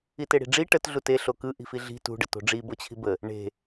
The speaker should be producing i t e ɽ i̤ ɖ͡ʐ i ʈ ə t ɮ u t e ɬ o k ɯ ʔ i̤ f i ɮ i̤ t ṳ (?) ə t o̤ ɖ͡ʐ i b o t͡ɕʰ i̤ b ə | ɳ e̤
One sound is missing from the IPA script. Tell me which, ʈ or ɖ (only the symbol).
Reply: ɖ